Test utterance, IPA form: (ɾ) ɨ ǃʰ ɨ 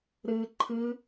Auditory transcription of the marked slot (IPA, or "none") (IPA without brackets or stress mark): ɾ